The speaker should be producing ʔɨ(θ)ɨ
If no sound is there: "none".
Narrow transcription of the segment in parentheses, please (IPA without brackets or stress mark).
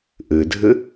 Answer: dʱ